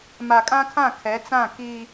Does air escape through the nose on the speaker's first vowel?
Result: no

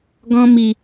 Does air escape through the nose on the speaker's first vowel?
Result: yes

